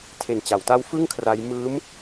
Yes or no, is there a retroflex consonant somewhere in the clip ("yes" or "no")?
no